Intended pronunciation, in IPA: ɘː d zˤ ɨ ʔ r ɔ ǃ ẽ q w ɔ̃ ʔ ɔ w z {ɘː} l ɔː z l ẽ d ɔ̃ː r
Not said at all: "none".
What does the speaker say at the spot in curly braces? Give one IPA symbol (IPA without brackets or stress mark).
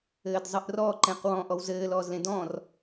ɘː